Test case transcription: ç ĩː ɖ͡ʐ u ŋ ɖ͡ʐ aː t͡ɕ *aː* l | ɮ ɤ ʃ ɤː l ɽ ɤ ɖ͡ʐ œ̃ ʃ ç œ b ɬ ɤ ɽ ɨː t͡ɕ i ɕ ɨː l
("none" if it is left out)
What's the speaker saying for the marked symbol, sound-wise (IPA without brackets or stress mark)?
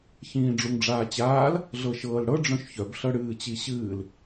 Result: aː